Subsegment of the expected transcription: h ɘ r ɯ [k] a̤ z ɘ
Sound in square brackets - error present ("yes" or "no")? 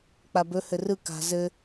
no